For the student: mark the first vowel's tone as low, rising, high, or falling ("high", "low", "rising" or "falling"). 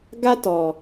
high